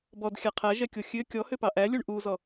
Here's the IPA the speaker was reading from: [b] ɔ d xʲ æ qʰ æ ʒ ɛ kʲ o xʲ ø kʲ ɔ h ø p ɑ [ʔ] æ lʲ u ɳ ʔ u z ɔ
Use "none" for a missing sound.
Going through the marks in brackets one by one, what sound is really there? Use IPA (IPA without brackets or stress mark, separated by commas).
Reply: b, ʔ